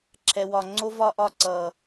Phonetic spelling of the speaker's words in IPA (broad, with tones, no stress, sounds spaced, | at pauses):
ǁʰ ɛ˨ w ɒ˨ ŋ͡ǀ o˦ v ɒ˦ ʔ ɒ˦˨ ǀ ʌ˨